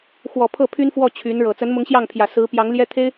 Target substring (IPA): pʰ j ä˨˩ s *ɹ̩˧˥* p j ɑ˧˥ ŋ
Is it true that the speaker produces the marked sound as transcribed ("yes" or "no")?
yes